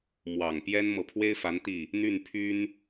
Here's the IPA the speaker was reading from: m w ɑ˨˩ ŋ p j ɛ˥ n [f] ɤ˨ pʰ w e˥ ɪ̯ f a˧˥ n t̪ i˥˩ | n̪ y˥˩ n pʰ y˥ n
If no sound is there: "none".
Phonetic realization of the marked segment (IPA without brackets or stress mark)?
m